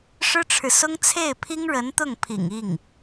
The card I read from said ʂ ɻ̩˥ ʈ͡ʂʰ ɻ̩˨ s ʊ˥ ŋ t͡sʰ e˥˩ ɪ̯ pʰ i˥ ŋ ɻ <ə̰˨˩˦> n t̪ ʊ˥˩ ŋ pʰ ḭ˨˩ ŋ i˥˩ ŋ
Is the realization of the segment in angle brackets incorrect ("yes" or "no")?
yes